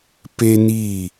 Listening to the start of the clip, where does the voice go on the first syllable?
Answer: high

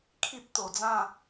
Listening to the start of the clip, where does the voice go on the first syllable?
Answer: high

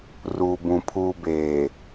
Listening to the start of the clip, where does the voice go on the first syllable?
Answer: low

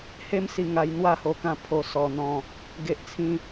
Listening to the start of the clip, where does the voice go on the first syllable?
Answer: high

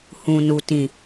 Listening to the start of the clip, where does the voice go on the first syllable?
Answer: low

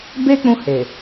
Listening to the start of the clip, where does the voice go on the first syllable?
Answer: high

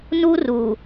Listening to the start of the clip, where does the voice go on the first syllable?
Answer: high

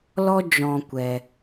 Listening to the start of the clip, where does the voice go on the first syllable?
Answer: high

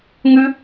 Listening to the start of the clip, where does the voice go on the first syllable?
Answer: high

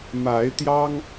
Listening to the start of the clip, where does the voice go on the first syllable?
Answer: rising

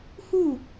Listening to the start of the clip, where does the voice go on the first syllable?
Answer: falling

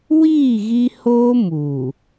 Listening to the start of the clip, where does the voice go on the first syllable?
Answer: falling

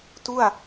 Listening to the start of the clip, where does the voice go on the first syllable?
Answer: falling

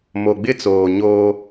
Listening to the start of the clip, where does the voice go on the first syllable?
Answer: low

